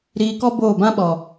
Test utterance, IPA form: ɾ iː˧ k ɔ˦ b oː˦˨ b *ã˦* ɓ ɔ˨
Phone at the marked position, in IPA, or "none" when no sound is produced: ã˦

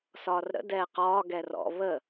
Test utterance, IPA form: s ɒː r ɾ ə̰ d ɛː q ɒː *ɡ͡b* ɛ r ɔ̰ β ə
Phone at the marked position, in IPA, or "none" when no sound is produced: ɡ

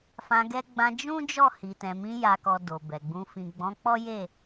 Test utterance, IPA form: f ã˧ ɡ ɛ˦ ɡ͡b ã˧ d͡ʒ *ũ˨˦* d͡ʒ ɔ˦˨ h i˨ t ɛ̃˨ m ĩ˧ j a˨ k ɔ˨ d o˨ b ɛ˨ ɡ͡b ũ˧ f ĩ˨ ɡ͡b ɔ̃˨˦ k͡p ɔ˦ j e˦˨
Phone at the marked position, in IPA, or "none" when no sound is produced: ũ˦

